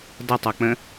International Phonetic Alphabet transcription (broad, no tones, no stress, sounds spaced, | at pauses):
d ɐ tˤ o k͡p ə̃